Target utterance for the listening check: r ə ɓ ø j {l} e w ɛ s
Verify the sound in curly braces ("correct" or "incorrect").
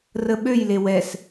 correct